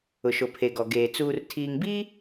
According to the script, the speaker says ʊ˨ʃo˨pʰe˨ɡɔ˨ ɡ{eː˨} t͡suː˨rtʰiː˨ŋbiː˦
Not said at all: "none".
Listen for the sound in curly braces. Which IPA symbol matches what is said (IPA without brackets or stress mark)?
eː˨